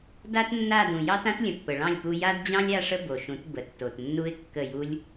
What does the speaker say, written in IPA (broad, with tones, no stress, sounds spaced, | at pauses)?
d a˦ t nː a˦˨ d ũ˨ j ɑ˦ t ã˦ t lʲ ə̃˨ pː ə˨ ɭ ɑ̃˦˨ lʲ p u˧ j a˦ d d͡ʑ ɑ̃˦ lʲ a˦ ʂ ə˦ b o˨ ʃ ũ˨˦ t b ə˨ tː o˨ t nː u˧ ɪ̯ kː ə˦˨ j u˦ lʲ